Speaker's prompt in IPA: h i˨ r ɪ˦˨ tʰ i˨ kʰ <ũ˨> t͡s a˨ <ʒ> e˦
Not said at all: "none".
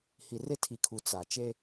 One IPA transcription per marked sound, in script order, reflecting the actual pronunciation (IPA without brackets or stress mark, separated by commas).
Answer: u˨, t͡ʃ